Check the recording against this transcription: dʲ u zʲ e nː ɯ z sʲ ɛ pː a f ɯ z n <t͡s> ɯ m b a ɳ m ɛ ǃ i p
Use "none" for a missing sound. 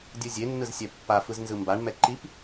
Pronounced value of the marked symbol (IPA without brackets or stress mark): z